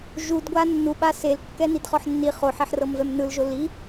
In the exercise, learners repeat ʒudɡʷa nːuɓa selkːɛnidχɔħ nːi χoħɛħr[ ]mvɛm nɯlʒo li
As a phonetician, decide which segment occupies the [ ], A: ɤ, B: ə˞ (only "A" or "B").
A